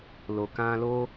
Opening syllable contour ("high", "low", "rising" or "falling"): low